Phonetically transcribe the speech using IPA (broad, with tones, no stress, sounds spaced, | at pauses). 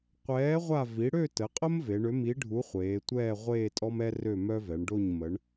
qʷ ɛː˨˥ ʁʷ a˦˨ v i˩˧ ɽ ø˦˨ t ə˩˧ qʼ ə˦ m v e˩˧ ɳ ø˨˥ m i˨˥ ɖʱ u˨˥ χʷ eː˩˧ tʷ ɛː˦˨ ʁʷ eː˦˨ tʼ ɔ˦ m ɛ˦ r ø˦˨ m œ˦ v ɛ˩˧ ɳ ɖ o˦˨ ɲ m ə˩˧ ɳ